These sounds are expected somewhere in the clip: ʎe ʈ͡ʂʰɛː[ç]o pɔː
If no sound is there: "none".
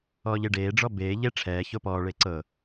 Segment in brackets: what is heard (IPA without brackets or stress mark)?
ç